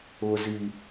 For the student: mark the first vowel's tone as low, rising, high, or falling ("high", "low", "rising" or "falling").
low